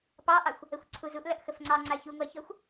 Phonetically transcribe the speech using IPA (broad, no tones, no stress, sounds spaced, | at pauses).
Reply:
p ɑ ʔ ɑ xʷ | ə xʷ ǀʰ u z u ʔ l ɐ ʔ x ə f ŋ͡ǀ ɑ ŋ͡ǀ a ç u ŋʷ a ç ɔ xʷ